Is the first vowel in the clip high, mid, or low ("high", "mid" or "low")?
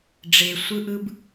mid